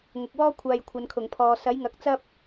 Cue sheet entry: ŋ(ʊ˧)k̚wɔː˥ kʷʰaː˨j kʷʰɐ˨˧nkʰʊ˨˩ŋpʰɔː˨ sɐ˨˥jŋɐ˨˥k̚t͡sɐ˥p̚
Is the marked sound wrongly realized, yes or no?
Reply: yes